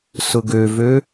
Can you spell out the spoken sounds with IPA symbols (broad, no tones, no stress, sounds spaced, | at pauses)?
s ʊ ɡ ø v ø